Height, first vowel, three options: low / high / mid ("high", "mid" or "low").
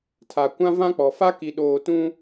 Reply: low